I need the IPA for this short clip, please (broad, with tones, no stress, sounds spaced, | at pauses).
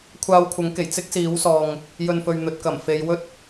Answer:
kʷʰ aː˧ w kʷʰ ɐ˨˥ ŋ k e˨˩ j t͡s ɪ˥ k̚ s iː˨˥ w s ɔː˨ ŋ | j ɵ˨ n f ɵ˨ ɥ n̪ ɵ˨ t̚ k ɐ˨˩ m f e˨˧ j w ɵ˥ t̚